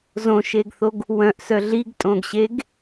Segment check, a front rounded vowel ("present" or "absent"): present